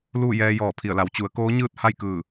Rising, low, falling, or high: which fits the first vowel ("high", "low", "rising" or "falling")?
falling